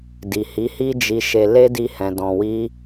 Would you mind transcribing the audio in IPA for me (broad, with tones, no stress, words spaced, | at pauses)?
di˨hi˨˦hi˦ d͡ʒi˧ʃe˧ le˦di˧hɛ̃˨ dɔ̃˨wi˧